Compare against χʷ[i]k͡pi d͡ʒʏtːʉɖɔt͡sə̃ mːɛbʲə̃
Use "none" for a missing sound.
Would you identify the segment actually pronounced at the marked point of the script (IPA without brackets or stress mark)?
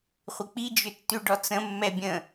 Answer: ɪ